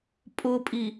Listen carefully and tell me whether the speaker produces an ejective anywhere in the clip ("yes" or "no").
yes